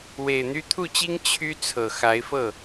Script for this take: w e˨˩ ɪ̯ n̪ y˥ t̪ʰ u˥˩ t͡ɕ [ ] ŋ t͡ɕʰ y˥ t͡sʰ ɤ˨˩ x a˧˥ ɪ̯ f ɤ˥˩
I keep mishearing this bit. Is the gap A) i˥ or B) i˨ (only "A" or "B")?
A